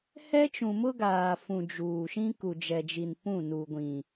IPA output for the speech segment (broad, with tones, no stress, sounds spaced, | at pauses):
h ɛ˦ t͡ʃ ũ˨ m ʊ˦ ɡ aː˨ f ũ˨ d͡ʒ uː˨ ʃ ĩ˦ k u˨ d͡ʒ ɛ˨ d͡ʒ i˨ n p ũ˦˨ n u˨ ɡʷ ĩ˨